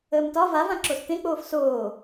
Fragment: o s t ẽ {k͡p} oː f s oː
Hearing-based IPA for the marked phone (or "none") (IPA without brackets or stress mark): k͡p